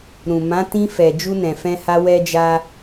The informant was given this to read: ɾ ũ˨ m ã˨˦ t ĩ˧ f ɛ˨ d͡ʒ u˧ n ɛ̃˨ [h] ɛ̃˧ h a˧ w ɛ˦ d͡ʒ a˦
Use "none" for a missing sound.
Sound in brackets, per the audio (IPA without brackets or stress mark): f